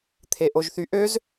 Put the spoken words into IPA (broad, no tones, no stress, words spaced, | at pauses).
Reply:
t̪ʰeʔoʒθyʔøz